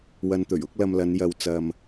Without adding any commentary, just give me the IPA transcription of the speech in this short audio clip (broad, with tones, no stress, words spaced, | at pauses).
wɐ˨n t̪ɵ˨˩ɥʊ˨˥k̚ lɐ˧mlɐ˨˧n jɐ˨wt͡sɐ˨m